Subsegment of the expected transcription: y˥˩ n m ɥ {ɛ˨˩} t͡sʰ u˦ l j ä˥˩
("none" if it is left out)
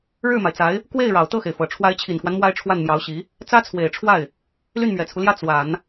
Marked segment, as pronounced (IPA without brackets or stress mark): ɛ˨˩